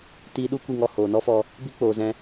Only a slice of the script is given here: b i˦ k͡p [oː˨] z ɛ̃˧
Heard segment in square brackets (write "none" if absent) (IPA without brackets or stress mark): oː˨